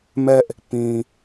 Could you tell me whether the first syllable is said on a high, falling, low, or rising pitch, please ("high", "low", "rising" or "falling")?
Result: high